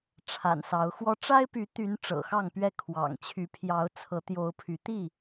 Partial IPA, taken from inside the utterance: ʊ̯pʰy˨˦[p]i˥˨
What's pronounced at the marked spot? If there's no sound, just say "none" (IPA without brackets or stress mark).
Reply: t̪